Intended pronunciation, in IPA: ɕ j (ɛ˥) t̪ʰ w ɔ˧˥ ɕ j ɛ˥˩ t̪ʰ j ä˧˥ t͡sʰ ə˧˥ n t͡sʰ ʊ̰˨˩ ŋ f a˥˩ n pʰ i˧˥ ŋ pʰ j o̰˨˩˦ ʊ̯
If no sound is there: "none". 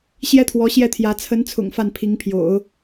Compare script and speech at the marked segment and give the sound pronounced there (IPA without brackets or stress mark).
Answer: ɛ˥